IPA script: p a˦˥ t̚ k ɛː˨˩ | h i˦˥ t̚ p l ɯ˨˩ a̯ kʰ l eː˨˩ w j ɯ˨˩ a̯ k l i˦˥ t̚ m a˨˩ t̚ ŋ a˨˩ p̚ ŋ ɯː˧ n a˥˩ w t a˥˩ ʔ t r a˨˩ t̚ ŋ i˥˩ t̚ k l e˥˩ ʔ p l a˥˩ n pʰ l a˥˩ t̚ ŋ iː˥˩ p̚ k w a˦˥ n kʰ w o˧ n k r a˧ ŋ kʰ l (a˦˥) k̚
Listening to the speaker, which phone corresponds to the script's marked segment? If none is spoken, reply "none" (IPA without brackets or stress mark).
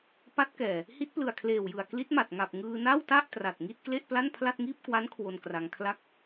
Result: a˥˩